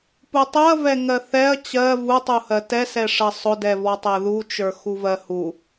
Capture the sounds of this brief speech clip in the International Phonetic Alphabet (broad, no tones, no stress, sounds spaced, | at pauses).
p u tˤ u ɐ̯ v ɛ ŋ ɜ θ ɛ ɐ̯ t͡ɕ ɜ v u tˤ u h ɜ t ɛ s ɛ ʂ ɜ sˤ ʊ d ɛ v ɔ tˤ ɛ ð u t͡ʃ ə˞ x u v ɜ h u